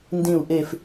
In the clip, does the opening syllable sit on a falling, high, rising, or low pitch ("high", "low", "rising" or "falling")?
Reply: low